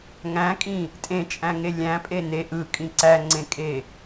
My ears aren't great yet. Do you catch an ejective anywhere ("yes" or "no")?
yes